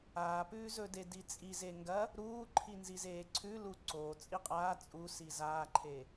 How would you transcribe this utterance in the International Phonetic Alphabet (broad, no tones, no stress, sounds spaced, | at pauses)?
aː p ʉː z ɵ d e d i t͡sʼ i z e ŋ ɡ ɐ | ɾ uː ǃʰ i n z i z eː ǀʰ ʉ l u ǀ o t͡sʼ i qʼ aː t͡sʼ u s i z aː ǃʰ e